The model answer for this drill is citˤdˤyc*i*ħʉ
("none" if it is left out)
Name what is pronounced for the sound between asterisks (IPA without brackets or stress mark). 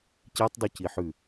i